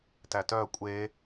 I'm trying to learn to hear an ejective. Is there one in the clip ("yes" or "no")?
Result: yes